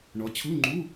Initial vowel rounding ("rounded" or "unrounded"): rounded